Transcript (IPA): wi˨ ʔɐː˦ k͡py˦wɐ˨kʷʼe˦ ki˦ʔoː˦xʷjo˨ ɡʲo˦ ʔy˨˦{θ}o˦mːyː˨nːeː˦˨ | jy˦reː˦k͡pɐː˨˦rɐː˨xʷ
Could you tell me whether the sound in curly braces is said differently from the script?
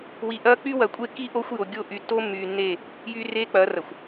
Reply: yes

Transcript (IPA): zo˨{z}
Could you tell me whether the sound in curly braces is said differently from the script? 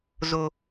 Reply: yes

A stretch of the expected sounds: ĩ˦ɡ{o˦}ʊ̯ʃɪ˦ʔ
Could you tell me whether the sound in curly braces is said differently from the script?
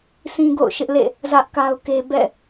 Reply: yes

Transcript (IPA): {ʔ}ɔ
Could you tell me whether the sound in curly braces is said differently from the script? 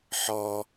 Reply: yes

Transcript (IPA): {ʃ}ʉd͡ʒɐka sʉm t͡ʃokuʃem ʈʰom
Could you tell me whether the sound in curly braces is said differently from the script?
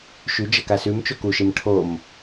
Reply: no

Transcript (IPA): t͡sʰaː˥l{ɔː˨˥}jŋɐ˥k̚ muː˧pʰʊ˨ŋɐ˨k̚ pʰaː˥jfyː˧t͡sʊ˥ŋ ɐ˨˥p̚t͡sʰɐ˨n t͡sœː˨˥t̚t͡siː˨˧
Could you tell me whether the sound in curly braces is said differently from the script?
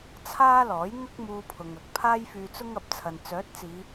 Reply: no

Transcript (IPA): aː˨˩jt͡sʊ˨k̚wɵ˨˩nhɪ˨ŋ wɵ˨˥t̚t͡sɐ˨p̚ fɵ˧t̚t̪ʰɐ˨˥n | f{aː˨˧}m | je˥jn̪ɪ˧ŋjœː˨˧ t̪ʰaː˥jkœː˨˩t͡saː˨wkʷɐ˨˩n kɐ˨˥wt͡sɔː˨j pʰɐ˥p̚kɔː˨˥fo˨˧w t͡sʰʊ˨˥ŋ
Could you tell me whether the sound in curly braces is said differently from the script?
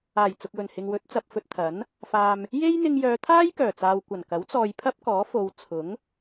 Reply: yes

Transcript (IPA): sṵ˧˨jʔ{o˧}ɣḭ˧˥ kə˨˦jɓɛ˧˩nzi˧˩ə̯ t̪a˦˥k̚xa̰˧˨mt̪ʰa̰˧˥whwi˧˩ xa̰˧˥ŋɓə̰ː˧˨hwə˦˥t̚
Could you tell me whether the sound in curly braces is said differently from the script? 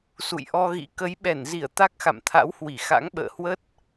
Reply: yes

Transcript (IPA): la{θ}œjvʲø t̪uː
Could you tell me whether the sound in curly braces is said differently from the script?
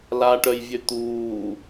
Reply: yes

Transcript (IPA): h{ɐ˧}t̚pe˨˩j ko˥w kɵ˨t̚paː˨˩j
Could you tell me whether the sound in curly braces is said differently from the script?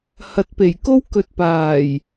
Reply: yes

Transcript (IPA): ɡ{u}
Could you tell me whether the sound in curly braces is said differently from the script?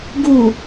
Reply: no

